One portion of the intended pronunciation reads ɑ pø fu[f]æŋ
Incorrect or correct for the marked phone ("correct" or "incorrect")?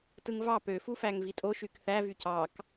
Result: correct